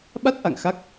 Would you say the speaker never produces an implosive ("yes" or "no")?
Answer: no